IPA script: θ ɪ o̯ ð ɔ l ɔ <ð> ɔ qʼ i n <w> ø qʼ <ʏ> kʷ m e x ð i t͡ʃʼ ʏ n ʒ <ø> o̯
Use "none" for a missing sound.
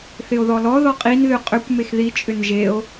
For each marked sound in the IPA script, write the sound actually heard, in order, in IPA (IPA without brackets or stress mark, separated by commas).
ð, ð, ʏ, e